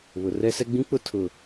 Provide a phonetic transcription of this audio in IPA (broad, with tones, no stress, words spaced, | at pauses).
βʊ˨ rɛ˦sɛ˦ɡ͡bĩ˦k͡pʊ˦ tʰʊ˨